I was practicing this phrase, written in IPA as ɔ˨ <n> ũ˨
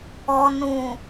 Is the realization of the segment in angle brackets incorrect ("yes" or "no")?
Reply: no